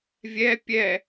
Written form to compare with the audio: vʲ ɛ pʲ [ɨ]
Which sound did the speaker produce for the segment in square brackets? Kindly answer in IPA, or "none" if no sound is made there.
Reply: ɛ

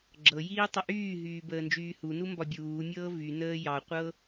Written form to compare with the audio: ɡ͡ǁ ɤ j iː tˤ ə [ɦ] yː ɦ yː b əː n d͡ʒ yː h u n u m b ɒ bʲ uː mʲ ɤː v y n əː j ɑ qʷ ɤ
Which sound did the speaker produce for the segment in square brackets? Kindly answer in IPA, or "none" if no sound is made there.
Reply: ʔ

